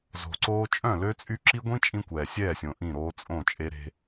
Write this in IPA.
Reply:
z o̤˨ ǀ oː˦ t͡ʃʼ œ̃˦˨ l ø˦ t͡sʼ y˦ ǁ i˦ ɡʷ ĩ˦ t͡ʃʼ ĩ˦ kʷ ɛː˨ sʲ ɛː˦˨ sʲ õ˨ ʔ ĩ˦˨ ɾ oː˦ t͡sʼ õ˦˨ t͡ʃʼ e˦ ɾ e̤˦

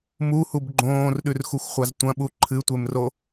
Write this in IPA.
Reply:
m u h u b ɡ͡ǃ õː r ɗ ʉ r x u xʷ χʷ a z tʷ ɐ̃ ɓ u ǃʰ ɨ tʷ e m r o

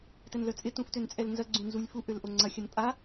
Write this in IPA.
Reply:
t ɛ n l œ t͡sʼ ɪ t ũ f t ø n t͡sʼ ɛ l n z ɐ ɡ͡ǀ ũ n z u lʲ f u ʔ ø l ʔ o ŋ͡ǀ ɐ xʲ ɐ n pʼ a

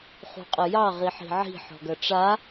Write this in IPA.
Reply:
χ ṳ qʼ ə j ɑ ʁ i ħ i̤ ʕ i̤ ħ ɔ̤ ɡ ɐ ʈ͡ʂ a

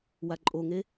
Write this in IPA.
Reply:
w a ǃʼ o ŋ e

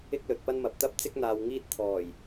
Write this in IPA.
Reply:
ɪ˥ k̚ l ɵ˨ t̚ p ɐ˥ n m ɐ˨ p̚ t̪ ɐ˥ p̚ t͡s ɪ˥ k̚ n̪ aː˧ w ŋ iː˥ t̚ t̪ʰ ɔː˨˩ j

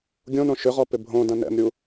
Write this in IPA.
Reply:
ɡʲ õ n õ ʃ ʏ ʁ ɔ p ɪ bʱ õ d ɐ̃ n ɛ̰ m ɾʲ u

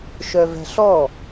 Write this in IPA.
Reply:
ʃ œ v ɛ̤ ɬ ɔ

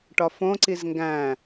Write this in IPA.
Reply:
ʈ ɒ f õ ǀ i z ŋ ɡ æ̃

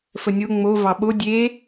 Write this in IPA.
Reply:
f ə nʲ o ŋ͡m o v ɑ ɓ o dʲ e

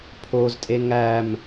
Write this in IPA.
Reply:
pʰ o z tʼ e ŋ æ m

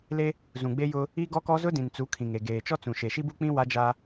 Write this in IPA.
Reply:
l e˦ | z ũ˨ ɡ͡b e˦ j ʊ˦ | i˦ ɡ ɔ˦ k ɔ˦ z ʊ˦ d ĩ˨ n t͡s u˨˦ kʰ ĩ˨ ŋ e˨ ɡ eː˨ t͡ʃ ɔ˦ t͡s ũ˨ ʃ e˨ ʃ i˦ b u˦ k͡p ĩ˦ w a˦ d͡ʒ a˦

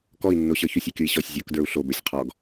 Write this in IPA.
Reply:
k ɔ i̯ nː o ɕ ə˞ ç o sʲ o kʲ o i̯ ɕ ɔ sʲ zʲ o k d ə˞ u̯ ɬ o b ə˞ sʲ qʰ ɔ ɡ

